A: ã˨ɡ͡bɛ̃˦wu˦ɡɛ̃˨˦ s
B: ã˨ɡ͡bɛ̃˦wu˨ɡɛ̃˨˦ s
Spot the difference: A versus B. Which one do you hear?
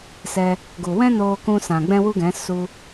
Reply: A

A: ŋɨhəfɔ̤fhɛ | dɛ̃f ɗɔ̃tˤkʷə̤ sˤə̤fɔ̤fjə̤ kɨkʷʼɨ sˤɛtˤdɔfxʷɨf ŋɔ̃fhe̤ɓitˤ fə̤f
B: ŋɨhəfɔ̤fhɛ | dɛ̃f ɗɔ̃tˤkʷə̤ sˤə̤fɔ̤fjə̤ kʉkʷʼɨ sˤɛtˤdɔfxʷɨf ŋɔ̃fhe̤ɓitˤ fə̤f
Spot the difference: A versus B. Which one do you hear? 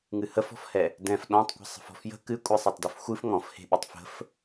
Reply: A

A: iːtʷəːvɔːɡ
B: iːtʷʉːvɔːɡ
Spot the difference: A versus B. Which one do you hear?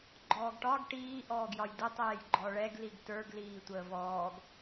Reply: A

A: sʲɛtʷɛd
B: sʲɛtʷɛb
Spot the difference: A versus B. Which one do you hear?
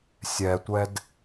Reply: A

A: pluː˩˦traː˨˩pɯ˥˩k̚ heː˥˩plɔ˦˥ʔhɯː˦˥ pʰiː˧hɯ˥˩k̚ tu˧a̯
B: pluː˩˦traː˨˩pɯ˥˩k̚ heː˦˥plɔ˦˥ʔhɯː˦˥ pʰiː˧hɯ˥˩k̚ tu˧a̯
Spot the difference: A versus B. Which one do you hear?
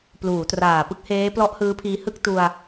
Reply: B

